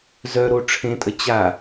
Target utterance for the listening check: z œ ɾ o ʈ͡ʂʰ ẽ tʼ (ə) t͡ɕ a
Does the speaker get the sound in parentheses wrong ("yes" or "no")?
no